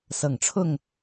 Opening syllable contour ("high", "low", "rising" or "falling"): low